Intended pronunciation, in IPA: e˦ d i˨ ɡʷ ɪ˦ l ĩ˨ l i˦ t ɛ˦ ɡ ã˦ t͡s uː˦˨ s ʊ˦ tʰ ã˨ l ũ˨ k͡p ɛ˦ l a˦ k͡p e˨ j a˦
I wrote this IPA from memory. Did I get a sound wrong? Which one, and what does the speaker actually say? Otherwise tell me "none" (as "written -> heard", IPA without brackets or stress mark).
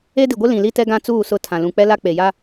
ʊ˦ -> ʊ˦˨